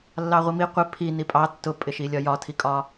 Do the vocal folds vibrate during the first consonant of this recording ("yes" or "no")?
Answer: yes